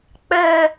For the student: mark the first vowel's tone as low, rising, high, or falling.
high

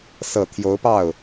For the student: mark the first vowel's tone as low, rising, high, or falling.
low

